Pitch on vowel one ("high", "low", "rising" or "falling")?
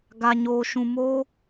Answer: low